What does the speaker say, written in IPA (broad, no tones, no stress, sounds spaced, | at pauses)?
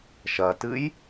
ʃ ɐ t ɨ j